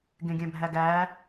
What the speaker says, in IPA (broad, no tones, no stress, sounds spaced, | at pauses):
ɡ ẽ ɡʲ æ̃ bʱ æ ɡ æː